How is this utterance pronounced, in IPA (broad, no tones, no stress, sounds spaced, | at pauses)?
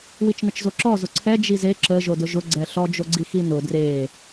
w i t͡ʃ n ə t͡ʃ z o ǁ ɔ z ʊ ǀʰ ɛ d͡ʒ i z e ǁ ə ʒ o d ʊ ʒ ʊ ɡ͡ǀ ɛ ɬ ɔ d͡ʒ o ɡ͡ǀ i x i n ʊ d r e